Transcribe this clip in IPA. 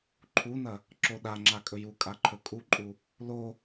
ǃʰ u n ɐ | ǁ o ɗ a ŋ͡ǁ a kʼ ɵ j u kʼ a ǃʰ ɵ kʼ u ǃʼ u | l o

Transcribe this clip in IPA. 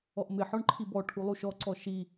ɔ ʔ m ɪ ħ ɔ ɳ ǃʰ i b ɔ ʈʰ u lˠ u ʃ ɔ ǀ ɔ ʃ i

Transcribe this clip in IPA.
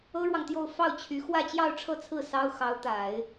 ɤ˥ ɻ w ɑ˨ ŋ t̪ j o˥˧ ʊ̯ f ɑ˥˩ ʊ̯ t͡ɕʰ y˧˥ x w ä˥˧ t͡ɕ j ɑ˥˧ ʊ̯ ʈ͡ʂʰ ɤ˥˧ t͡sʰ ɹ̩˥˩ s ɑ˥ ʊ̯ x ɑ˧˥ ʊ̯ t̪ a˨˩˦ ɪ̯

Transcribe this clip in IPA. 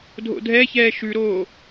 dʱ o̰ dʱ ɛ ç ɛː ʃ ʉ ɾ oː

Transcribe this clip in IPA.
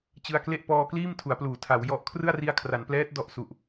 t͡ɕ ɯ˧ a̯ k l e˥˩ ʔ p ɔː˧ k l iː˥˩ m tʰ u˩˦ a̯ p l uː˩˦ tʰ a˩˦ w j ɔ˦˥ ʔ kʰ r ɯ˥˩ a̯ r i˧ a̯ kʰ r a˩˦ n p l ɛː˦˥ t̚ d ɔ˦˥ ʔ s u˨˩ ʔ

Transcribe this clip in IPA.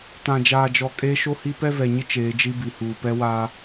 t ã˨ d͡ʒ aː˨ d͡ʒ ɔ˨ kʼ eː˦ ʃ o˦ h i˦ p ɛ˦ v ɛ˨ ɲ ɪ˦ t͡ʃ eː˨˦ d͡ʒ i˦ b i˨ h uː˨ p ɛ˦ w aː˦

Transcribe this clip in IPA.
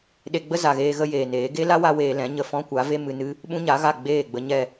ɗ e˧ ɡ͡b ə˦ z a˨ ɣ eː˧ ɣ ə˦ j eː˨ n eː˨˦ ɡ e˦ l a˦ w a˦ w eː˧ l ɛ̃˨˦ ɲ ə˧ f ɔ̃˦ kʷ a˨˦ v e˦ m ɨ˧ n ɨ˦ | ɓ ũ˦ ɲ a˨˦ ɣ a˦˨ ɡ͡b eː˦˨ ɡ͡b ə˧ ɲ ɛ˦˨

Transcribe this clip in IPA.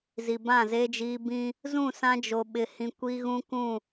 z i˨ b ã˦˨ z e˦ d͡ʒ iː˦ b ĩ˦ | z ũ˦˨ s ã˦ d͡ʒ o˨ ɓ ɪ˨ h ĩ˨ kʷ i˦ ɣ ũ˦ k ũ˦˨

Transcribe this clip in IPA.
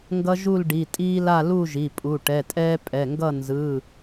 ŋ ɡ ʌ˦ ʒ u˥˨ l ɖ i˩˧˩ tʼ iː˦ l a˥˨ l u˥˨ ʒ i˩˧˩ pʼ u˩˧˩ ʈ ɛ˩˧˩ tʼ ɛː˦ pʼ ɛ˩˧˩ ŋ ɡ ʌ˥˨ n z ɯ˩˧˩

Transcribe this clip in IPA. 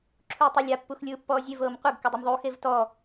ǁʰ uː tˤ a lʲ a pː u x lʲ ɯː pː ɔː zʲ e v ɤː m qʷ ɯ ɡ k u dˤ u m ðˤ uː x e v t ɔ

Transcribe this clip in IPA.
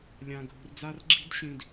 lʲ ã˧ ɡʱ ṳ˧ r d͡z a˦ r ɡ͡ǁ i̤˦ d ɕ ĩ˧ d

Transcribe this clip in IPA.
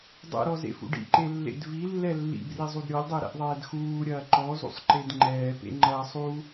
dˤ ɛ̰ ɾ ɔ z ḛ f ṵ ɖ ḭ ǃ e lː ḛ d v i lː ɛ lː ḭ b r i zˤ u d ɾʲ ɔ lʲ dˤ e ɾ ɛ̰ ʔ ðˤ ɛː d x uː ɾʲ ɐː ǃ ɔ z ṵ sˤ ǃ e d ŋ͡ǃ ɛː p ḛ ŋ͡ǃ ɐː sˤ u

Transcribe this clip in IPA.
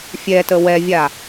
fʲ ɛ t ə w ɛ vʲ a

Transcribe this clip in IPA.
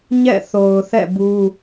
ɲ ɛ̰˦˨ θ o˨ ʊ̯ θ ɛ̰˦˨ b u˦

